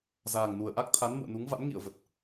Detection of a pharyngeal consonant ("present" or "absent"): absent